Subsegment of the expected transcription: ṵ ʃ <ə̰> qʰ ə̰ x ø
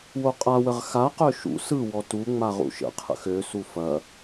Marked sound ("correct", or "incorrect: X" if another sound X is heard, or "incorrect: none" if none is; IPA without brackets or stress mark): correct